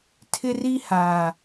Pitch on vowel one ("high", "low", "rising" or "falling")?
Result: high